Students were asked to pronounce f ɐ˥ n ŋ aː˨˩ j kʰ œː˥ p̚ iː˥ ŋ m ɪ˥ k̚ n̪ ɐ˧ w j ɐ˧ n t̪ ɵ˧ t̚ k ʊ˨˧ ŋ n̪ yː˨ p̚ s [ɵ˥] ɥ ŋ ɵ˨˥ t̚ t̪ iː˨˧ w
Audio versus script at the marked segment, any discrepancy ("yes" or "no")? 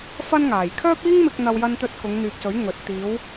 yes